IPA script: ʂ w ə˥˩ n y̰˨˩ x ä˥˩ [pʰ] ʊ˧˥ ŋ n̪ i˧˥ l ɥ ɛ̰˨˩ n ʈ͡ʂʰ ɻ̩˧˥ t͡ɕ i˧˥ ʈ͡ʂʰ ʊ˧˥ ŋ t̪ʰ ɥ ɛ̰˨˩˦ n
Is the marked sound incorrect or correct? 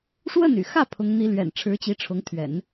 correct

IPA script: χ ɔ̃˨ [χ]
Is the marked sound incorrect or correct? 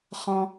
incorrect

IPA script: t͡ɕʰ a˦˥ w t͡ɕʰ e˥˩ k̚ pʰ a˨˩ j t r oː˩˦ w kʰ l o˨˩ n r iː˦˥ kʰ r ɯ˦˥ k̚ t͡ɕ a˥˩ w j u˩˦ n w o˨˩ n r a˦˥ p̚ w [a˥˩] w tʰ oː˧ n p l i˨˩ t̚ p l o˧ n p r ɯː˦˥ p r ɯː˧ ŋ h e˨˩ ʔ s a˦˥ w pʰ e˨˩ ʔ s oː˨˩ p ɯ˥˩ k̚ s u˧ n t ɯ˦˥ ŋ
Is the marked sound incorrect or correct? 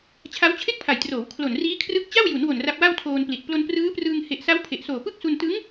correct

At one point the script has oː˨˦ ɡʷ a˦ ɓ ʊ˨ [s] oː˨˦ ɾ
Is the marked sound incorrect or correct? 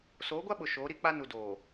incorrect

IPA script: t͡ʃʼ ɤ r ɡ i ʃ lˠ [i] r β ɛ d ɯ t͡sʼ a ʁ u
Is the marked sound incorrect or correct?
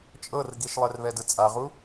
incorrect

